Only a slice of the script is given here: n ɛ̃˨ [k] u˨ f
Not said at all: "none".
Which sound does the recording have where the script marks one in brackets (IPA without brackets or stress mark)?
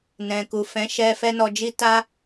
k